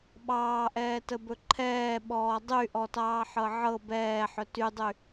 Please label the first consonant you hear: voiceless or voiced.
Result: voiced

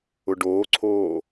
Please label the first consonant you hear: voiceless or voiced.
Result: voiced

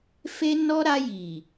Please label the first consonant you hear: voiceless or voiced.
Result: voiceless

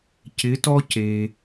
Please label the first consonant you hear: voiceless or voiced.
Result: voiceless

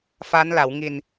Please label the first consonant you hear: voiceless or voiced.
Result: voiceless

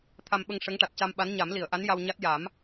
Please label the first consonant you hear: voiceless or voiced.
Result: voiceless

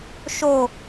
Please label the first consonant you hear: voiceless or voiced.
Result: voiceless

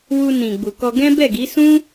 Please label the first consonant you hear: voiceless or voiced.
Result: voiced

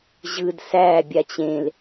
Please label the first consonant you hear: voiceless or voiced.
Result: voiced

